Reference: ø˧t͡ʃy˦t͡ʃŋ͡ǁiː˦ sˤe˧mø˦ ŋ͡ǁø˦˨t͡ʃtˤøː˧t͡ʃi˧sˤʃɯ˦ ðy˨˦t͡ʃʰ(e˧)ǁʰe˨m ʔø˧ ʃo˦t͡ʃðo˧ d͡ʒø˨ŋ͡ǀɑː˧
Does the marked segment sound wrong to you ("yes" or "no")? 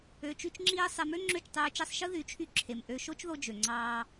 yes